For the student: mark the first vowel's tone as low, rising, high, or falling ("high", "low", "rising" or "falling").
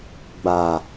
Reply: low